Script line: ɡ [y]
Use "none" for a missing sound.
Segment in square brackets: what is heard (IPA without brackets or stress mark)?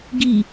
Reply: i